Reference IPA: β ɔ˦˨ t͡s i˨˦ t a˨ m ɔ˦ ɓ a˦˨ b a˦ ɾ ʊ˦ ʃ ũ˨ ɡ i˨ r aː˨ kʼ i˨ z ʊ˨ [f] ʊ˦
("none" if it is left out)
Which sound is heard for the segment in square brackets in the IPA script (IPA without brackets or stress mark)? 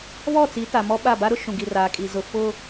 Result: f